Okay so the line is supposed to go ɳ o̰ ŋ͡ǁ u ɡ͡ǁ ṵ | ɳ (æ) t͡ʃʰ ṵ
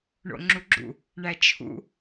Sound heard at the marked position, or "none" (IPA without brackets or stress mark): æ